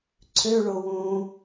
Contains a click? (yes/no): yes